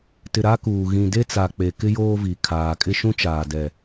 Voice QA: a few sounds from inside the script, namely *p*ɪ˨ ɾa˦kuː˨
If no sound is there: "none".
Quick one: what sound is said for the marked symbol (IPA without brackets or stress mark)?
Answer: t